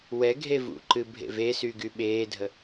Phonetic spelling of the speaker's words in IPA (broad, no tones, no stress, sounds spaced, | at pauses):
w ɛ ɡʱ e v ṵ ǃ ɨ bʱ ḛ v e s y ɡ y ɓ eː dʱ ə